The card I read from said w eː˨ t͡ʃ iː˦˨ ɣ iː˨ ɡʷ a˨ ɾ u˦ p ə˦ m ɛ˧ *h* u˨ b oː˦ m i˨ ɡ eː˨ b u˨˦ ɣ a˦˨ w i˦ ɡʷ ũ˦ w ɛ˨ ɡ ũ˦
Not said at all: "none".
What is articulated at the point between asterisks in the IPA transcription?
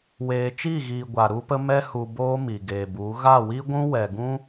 h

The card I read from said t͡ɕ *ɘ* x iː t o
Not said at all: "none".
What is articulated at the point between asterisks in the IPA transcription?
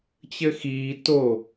ɘ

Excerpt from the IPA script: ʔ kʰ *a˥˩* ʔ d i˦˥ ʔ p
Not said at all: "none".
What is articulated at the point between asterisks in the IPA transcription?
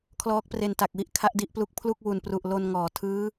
a˦˥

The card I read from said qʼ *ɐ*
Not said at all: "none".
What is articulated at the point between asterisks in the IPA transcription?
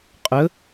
ə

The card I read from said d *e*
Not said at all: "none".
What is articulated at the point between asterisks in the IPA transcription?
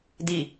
i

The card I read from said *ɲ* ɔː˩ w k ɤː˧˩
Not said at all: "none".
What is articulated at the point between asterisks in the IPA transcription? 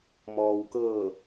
m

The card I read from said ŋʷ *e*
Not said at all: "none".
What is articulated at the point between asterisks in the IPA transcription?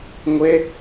e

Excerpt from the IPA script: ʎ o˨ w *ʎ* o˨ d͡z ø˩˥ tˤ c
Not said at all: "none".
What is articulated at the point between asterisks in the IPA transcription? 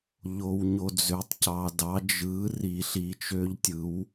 ɲ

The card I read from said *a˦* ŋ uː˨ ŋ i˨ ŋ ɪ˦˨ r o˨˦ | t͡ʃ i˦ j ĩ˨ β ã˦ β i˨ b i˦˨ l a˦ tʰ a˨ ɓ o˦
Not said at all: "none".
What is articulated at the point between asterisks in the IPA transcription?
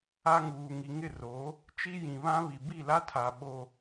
a˦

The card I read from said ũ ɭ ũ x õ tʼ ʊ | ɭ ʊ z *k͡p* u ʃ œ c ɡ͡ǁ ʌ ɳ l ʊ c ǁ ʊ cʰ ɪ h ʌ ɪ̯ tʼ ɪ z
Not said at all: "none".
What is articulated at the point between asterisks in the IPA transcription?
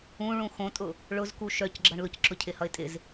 k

